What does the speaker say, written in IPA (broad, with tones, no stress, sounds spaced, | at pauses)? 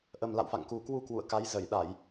ʔ ə˨˩ m l a̰˧˨ w f a̰˧˨ ŋ k u˨˩ k w u˧ k w ṵ˧˨ ə̯ k a˨˦ j z ə˧˩ j ɗ a˧˩˨ j